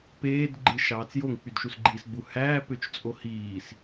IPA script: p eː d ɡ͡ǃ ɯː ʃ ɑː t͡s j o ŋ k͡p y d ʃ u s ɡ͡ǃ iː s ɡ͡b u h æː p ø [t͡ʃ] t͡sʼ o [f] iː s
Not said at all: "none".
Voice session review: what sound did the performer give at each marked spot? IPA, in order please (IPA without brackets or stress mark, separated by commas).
t͡ʃ, h